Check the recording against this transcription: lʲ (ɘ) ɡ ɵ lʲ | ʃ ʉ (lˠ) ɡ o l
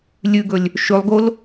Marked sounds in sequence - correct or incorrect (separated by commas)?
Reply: incorrect, correct